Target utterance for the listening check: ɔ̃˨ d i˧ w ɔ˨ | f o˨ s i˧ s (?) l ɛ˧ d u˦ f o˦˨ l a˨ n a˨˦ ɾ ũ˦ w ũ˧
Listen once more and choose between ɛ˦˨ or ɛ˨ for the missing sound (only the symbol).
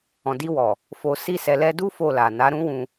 ɛ˨